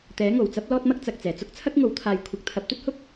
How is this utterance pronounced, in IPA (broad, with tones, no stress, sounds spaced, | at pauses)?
t̪ ɛː˨˥ ŋ o˨˩ w t͡s ɐ˥ p̚ l ɔː˥ t̚ m ɐ˥ k̚ t͡s ɐ˨ k̚ t͡s ɛː˨˩ t͡s ʊ˥ k̚ t͡sʰ ɐ˥ k̚ ŋ o˨˥ w t̪ʰ aː˨˧ j kʷʰ ɐ˨˥ k̚ t̪ʰ ɐ˨˥ p̚ t̪ ɵ˥ t̚ h ʊ˥ k̚